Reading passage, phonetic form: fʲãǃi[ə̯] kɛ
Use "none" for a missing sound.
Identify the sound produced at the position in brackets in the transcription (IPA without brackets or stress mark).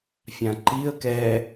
ə̯